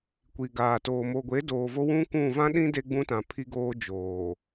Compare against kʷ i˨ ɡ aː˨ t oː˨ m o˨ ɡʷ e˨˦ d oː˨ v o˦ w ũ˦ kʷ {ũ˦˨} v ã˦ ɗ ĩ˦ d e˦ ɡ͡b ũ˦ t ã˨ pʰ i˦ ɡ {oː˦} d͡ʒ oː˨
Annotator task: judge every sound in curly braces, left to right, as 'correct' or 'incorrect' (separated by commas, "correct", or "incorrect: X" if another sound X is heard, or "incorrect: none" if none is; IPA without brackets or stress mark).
correct, correct